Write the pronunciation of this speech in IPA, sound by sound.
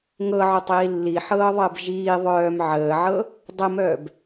ŋ ɤ ʕ o tˤ iː lː i ħ ɤː ðˤ əː b ʒ iː ðˤ œː m ʕ əː ʕ ɤ | dˤ ə m œː b

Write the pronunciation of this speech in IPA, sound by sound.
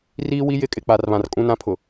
r iː˦ w i˦ j ɪ˦ kʼ ɪ˨ k͡p a˨ r β ã˨ r kʼ ũ˦ n ã˦ pʰ ʊ˨

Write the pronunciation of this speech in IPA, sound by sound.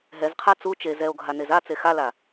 ɦ ɛ z qʰ a t͡s u t͡ʃ e z ɛ o̯ ɡʱ a n e z a t͡s e x a l a

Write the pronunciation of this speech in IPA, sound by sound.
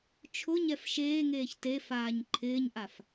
t͡ʃʰ ʊ ɲ ɛ f ʃ eː ŋ eː ç t e f aː ɲ ǃʰ ɪː ɲ ʔ a f

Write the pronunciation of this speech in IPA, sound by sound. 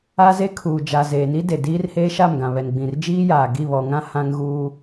a˦ z e˦ kʰ uː˨ d͡ʒ a˨ z eː˨ n i˦ d e˨ d iː˦ r h eː˦ ʃ a˦˨ m ɡ ã˨ β ɛ˨ n ɡ͡b ĩ˨ r d͡ʒ iː˦ j aː˨ ɡ i˦˨ β ɔ˨ ŋ ã˦ h ã˦ ŋ ɣ uː˦

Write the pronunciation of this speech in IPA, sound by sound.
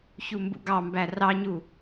ç u m b ṵ ɡ ɑ m b æ r ɑ ɲ u

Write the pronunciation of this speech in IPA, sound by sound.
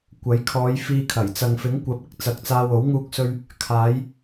kʷ ɐ˨˥ j kʰ ɔː˨˧ j f iː˧ kʰ ɐ˨˩ j t͡s ɐ˨ ŋ f ɪ˨˥ ŋ kʷ ɐ˨˥ p̚ ɪ˥ k̚ t͡s ɐ˨ k̚ t͡s aː˧ w o˨˥ w ŋ uː˧ k̚ s ɵ˧ ɥ | kʰ aː˨˧ j

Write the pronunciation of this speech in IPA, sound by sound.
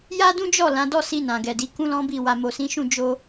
j a˦ d ũ˦ d͡ʒ ɔ˦˨ l ã˨˦ d ɔ˦ s i˧ n ã˨ ɡ ɛ˨ d i˨˦ k ũ˦ l ɔ̃˦ b i˦˨ w a˨ m o˨ s ĩ˨˦ ʃ ũ˦˨ d͡ʒ o˧

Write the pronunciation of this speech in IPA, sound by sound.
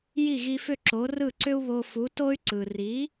j i˥˩ ɣ i˧ f ʏ˥˩ ǁ o˩˥ r ɯ˥˩ ǀ ʏ˥ u̯ β o˧ f u˩˥ t o˥ y̯ ǀ ɯ˩ r i˩˥

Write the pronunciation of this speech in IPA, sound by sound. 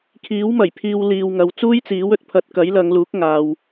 kʰ iː˨˥ w m ɐ˨˩ j pʰ iː˧ w l iː˨ w ŋ ɐ˨ w t͡s uː˥ j t͡s iː˨˥ w ɵ˨˥ t̚ pʰ ɐ˧ t̚ k ɐ˨˥ j l ɐ˨˧ ŋ l uː˨˥ k̚ ŋ aː˨ w

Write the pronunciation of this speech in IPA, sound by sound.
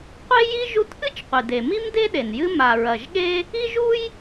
qʷ e˥ j i˥ ʒ u˥ t ʔ ɨ˥ t͡ʃ qʷ i˩ d e˩ m i˥ m d e˥ ɗ e˩ n j ɨ˥ m a˩ ɹ ɐ˩ ʒ ɠ e˥ | i˥ ʒ u˥ j

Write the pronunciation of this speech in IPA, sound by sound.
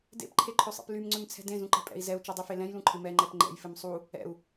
d ḛ p ǃʰ e ǃʰ ø sˤ ḛ p l y m ŋ͡ǀ ø m t͡sʰ ɛ̤ d ẽ z ũ ǃ ɛ̤ pʼ ɛ̰ i̯ z ɛ u̯ t͡ʃ ɛ dˤ y f e l ɛ̃ j l ũ ǃʰ ɪ m ɛ ŋ͡ǃ ɛ p ŋ͡ǃ ɛ̰ j f ɪ m sˤ u | ɛ̰ u̯

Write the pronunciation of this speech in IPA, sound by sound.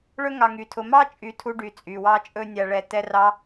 ɭ ɵ˥ ŋ ɑ˨ ŋ y˩ tʰ ʊ˨ m ɑ˥ t͡ʃʼ y˨ tʰ u˦ ɖ y˨ t͡sʼ y˩ w ɑ˥ t͡ʃʼ ɵ˥ nʲ a˨ ɭ ɛ˨ t ɛ˥ r ɑ˥

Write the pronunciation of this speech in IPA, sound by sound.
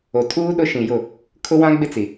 o˨ tʰ uː˦ ɗ ʊ˦ ʃ ĩ˨ j ʊ˦˨ | kʰ ʊ˦ w ã˦ ɡ͡b ɪ˦ t͡s i˨

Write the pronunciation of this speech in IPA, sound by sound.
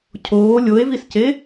cʰ oː lʲ o e̯ v i s c e

